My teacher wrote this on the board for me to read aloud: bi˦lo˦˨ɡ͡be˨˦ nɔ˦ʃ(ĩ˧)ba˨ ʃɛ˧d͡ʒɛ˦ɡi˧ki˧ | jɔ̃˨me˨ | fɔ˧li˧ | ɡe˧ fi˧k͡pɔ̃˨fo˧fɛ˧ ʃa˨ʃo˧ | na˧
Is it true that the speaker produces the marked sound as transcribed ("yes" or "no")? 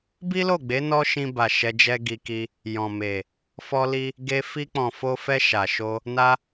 yes